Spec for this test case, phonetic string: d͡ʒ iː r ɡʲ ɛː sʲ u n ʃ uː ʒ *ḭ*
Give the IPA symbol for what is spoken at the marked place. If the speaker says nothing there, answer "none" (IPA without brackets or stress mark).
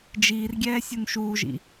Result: ḭ